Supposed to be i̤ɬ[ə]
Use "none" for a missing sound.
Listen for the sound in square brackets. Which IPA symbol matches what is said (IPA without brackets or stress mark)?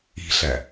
æ